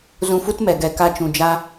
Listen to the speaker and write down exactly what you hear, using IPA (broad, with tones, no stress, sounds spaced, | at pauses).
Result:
z ũ˧ f u˦ t m ɛ˨ ɡ ɛ˨ k a˧ t͡ʃ ũ˨ d͡ʒ a˦